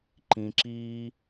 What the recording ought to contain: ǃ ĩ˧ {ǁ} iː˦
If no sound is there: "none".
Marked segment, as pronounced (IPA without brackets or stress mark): ǁ